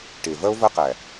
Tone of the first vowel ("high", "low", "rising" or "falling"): low